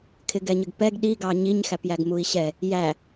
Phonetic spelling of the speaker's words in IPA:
kʰ ɪ ɡ ɛ ɲ ə ɡ p ɛ ɡ ɗ i ɡ ɑ ɲ i ɲ x æ p j æ ɡ m u i̯ ɕ ɛ | j æ

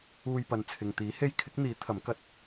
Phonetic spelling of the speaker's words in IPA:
uː˧ j p ɐ˨ n t͡sʰ ɪ˨ ŋ t̪ iː˨˥ h e˥ j kʰ ɪ˨˥ k̚ n̪ iː˨˥ t̪ʰ ɐ˨˥ m k ɐ˧ t̚

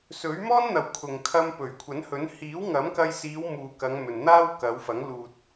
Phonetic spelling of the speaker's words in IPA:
s ɵ˨˥ ɥ m ɔː˥ n n̪ ɐ˨ w kʰ ʊ˨ ŋ kʰ ɐ˧ m p ɵ˨˩ ɥ kʷʰ ɐ˨˥ n h ɵ˨˥ n h iː˨˥ w ŋ ɐ˨˥ m k ɐ˧ j s iː˨˧ w m uː˨ k ɐ˨˧ ŋ m ɵ˨ n n̪ aː˥ w k ɐ˨˧ w f ɐ˨˥ ŋ l uː˨ t̚

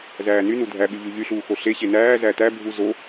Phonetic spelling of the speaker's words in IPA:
z æː n y n u dʱ æ ɓ y ʎ y ʎ y ɬ uː x o ɬ e ɕ e n æː z æ t æ bʱ u z o

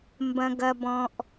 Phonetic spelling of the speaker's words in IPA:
m b ɐ̃˧ ɡ ɐ˧ b ɔ̃˧ ʔ

